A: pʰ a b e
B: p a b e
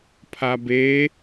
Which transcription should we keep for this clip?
A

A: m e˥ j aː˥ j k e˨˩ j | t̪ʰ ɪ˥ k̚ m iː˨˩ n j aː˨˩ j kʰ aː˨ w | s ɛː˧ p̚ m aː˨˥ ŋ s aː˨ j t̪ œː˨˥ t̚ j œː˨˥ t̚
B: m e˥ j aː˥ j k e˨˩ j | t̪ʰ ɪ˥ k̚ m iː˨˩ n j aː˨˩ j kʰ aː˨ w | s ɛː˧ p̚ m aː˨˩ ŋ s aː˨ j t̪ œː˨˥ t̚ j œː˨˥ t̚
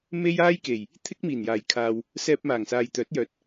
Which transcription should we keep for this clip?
B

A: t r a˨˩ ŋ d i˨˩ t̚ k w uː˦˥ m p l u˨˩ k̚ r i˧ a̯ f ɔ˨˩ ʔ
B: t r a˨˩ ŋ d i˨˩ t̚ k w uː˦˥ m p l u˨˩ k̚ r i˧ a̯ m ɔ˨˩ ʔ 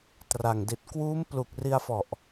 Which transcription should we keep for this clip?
A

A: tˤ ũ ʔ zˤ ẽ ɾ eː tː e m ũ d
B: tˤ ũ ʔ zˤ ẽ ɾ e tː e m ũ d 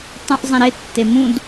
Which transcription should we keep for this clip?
B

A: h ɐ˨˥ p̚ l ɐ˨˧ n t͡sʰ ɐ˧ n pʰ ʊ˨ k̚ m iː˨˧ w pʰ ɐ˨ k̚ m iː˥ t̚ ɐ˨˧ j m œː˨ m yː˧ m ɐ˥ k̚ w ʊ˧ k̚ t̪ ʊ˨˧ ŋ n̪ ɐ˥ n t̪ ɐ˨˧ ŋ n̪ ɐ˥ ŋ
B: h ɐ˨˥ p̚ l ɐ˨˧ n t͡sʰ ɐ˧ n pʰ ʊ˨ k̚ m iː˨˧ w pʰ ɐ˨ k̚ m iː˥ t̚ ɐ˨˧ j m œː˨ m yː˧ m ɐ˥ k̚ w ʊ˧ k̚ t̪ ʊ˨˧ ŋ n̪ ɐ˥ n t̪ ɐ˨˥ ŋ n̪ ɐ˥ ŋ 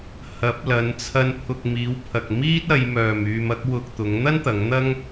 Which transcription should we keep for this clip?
A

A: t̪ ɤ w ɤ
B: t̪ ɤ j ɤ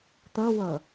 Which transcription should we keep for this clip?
A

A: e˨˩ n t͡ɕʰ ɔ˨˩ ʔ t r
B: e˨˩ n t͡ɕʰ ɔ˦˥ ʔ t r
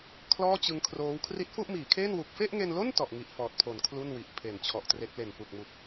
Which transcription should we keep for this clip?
A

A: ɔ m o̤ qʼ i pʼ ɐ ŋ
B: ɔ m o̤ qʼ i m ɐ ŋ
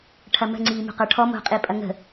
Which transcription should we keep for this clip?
A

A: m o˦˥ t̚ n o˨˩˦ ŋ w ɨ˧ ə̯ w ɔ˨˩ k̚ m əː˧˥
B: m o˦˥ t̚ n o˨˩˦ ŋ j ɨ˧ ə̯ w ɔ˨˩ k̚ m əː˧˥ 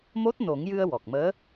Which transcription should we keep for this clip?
B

